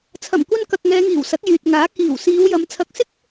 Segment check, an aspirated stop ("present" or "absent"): present